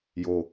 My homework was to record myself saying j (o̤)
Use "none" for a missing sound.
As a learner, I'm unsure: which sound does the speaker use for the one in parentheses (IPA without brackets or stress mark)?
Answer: o